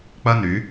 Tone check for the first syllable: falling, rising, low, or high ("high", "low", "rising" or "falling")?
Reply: high